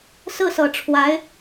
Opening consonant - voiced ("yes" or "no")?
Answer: no